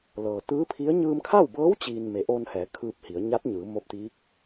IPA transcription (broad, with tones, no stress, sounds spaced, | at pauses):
l ɤː˩ t̪ ɯː˧˥ pʰ i˧˥ ə̯ ɲ ɯː˧ m kʰ a˥˨ w b ɤː˧˥ w t͡ɕ iː˧ n m e˩˧ ʔ oː˧ n h ɛː˩˧ kʰ ɯː˧ p̚ h i˩˧ ə̯ ɲ a˧˥ t̚ ɲ ɯː˩˧ m o˧ p̚ t̪ iː˧˥ k̚